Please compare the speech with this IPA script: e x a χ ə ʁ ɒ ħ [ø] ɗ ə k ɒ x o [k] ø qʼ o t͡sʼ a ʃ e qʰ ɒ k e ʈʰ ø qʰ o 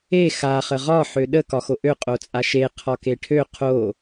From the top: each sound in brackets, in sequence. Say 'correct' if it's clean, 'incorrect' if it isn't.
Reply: correct, incorrect: ʔ

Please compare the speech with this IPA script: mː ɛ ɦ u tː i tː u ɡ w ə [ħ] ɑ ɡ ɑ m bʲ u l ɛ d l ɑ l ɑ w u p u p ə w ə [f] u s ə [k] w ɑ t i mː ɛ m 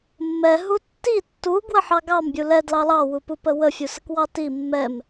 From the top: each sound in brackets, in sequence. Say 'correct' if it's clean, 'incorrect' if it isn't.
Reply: correct, incorrect: fʲ, correct

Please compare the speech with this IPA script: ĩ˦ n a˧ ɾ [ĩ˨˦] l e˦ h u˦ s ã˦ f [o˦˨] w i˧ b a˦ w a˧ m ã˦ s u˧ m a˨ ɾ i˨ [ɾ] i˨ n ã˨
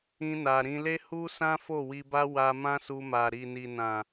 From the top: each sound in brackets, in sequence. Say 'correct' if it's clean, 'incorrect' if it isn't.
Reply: incorrect: ĩ˧, correct, incorrect: n

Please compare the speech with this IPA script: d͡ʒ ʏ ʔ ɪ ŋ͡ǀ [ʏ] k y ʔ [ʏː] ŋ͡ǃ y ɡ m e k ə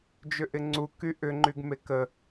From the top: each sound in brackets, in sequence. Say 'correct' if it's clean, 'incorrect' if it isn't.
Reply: incorrect: u, incorrect: ʏ

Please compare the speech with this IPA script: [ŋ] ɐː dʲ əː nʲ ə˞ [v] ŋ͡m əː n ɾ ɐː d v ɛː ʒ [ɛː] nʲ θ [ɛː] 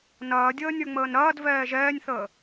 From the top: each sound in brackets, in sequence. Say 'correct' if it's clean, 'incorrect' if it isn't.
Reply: incorrect: n, incorrect: none, correct, incorrect: əː

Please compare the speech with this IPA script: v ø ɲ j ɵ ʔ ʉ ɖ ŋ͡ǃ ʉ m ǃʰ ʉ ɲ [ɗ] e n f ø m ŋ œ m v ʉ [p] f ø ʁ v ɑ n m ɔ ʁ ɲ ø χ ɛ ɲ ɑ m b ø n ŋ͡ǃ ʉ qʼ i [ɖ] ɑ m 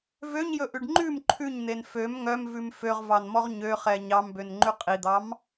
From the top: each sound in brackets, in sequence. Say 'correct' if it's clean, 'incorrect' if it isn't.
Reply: incorrect: n̪, incorrect: m, incorrect: d̪

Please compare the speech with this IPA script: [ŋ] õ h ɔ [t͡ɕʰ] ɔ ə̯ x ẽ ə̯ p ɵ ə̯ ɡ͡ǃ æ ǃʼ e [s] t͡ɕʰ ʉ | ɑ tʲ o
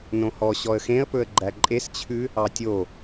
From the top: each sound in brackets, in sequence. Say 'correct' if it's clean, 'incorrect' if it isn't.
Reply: incorrect: n, incorrect: ɕ, correct

